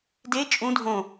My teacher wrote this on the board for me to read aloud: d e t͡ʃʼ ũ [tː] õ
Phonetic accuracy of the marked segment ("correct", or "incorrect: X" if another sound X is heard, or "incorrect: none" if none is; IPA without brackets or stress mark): incorrect: dʱ